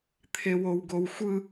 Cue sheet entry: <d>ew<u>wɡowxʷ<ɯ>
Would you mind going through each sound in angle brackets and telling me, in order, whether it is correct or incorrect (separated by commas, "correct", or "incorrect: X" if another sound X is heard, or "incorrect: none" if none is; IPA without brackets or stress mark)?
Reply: incorrect: t̪ʰ, incorrect: o, correct